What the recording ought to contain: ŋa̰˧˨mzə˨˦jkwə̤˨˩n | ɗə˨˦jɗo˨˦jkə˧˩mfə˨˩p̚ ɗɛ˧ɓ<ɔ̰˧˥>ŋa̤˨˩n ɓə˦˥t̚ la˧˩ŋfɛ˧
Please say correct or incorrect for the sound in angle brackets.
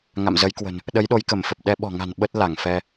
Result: incorrect